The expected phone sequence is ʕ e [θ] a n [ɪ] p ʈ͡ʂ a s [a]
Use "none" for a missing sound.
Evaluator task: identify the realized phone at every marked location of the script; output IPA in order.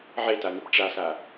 t, ɪ, a

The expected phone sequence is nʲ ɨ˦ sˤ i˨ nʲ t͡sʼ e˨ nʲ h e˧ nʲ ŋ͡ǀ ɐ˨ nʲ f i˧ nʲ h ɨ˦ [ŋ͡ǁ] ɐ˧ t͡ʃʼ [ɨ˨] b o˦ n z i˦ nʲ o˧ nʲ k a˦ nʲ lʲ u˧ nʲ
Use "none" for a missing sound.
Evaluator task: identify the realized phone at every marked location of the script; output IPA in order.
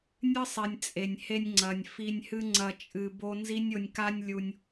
ŋ͡ǀ, ɨ˧

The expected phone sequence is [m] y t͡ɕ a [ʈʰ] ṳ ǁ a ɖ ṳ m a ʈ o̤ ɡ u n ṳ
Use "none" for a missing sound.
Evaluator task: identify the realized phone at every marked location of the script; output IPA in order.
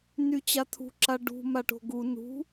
n, t̪ʰ

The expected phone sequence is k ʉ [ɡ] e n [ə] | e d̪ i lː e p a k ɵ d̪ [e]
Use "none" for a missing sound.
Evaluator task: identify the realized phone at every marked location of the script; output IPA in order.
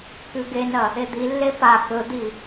ɡ, ɐ, i

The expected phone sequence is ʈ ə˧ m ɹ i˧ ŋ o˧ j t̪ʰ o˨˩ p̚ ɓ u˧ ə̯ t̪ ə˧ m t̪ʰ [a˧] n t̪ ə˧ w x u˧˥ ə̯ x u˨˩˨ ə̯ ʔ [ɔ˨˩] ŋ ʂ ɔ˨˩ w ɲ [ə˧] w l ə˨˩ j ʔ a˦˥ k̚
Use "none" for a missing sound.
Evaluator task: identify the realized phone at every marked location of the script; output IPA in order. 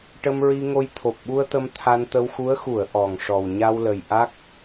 a˧, ɔ˨˩, a˧

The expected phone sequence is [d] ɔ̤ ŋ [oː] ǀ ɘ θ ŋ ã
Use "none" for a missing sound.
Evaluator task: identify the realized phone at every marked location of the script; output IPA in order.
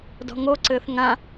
d, o

